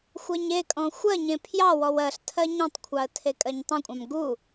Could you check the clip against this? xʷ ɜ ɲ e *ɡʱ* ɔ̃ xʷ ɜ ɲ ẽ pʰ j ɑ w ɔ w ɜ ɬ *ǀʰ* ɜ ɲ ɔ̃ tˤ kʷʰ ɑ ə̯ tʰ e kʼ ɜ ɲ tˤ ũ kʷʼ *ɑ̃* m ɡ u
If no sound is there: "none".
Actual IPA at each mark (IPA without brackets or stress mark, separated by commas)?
kʼ, tʰ, ɑ̃